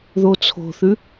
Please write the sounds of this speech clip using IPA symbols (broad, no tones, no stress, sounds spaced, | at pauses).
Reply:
ð o t͡sʰ o̤ θ ʉ